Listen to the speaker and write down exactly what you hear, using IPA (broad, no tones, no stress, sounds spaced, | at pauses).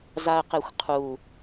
z a ə̯ q e xʷ qʰ u